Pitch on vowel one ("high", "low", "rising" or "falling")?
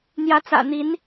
rising